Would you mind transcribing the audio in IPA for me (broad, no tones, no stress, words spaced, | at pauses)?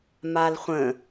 malχʷə̃